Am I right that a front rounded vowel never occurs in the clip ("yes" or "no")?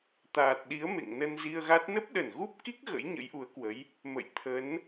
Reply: yes